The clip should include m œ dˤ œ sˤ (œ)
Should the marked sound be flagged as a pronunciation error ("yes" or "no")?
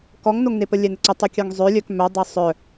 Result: no